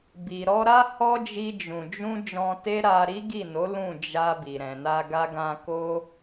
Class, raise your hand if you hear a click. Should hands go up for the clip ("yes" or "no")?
no